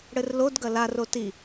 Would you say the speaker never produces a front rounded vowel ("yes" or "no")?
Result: yes